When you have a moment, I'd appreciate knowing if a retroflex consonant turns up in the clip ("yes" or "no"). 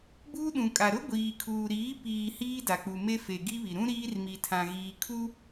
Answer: no